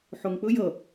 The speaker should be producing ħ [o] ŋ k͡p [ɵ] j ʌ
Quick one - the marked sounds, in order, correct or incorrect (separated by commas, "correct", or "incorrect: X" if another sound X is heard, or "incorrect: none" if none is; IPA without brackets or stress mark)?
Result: correct, correct